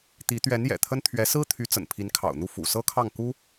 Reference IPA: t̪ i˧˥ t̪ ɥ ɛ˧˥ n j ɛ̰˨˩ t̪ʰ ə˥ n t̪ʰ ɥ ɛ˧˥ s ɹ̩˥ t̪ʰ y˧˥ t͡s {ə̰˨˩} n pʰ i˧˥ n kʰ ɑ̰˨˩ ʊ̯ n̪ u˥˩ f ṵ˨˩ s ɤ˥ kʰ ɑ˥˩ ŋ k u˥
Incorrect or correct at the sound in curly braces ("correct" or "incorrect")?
correct